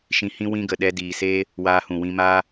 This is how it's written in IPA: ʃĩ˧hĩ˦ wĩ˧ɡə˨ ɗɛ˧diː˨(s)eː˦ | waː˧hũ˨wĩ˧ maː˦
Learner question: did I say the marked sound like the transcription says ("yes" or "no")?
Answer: yes